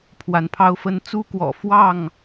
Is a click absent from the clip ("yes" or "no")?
yes